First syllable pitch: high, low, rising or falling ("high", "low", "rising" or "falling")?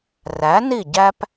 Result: rising